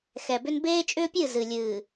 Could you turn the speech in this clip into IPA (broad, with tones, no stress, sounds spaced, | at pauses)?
x ɛ˨ b ʏ˦ n b eː˦ t͡ʃʼ ʏː˦ pʲ ɨ˦˨ z ɨ˨ lʲ ɨː˨